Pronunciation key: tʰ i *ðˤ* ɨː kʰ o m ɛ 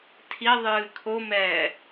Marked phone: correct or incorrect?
correct